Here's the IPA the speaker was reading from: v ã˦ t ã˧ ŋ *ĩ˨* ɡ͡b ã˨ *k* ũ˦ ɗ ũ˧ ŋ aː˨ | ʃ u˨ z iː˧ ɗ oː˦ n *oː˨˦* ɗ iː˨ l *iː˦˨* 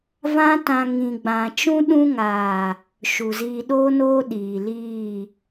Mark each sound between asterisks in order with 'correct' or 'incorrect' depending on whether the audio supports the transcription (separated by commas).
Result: correct, incorrect, incorrect, correct